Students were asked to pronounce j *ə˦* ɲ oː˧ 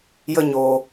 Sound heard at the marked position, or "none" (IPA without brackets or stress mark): ə˦